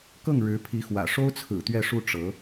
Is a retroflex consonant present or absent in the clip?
present